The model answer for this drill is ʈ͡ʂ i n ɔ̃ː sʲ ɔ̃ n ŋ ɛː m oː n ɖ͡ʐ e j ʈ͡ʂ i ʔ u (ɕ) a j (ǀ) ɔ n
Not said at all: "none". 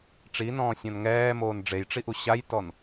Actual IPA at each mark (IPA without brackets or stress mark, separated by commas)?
ɕ, t